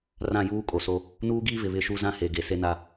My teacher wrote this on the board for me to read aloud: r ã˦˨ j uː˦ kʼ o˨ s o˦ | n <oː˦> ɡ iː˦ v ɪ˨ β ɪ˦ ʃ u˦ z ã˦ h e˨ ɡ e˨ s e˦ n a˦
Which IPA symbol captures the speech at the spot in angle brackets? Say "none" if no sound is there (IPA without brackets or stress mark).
uː˦